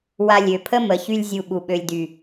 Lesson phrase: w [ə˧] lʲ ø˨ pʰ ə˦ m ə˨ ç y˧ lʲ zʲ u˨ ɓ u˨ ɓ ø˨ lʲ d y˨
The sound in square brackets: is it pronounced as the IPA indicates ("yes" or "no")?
no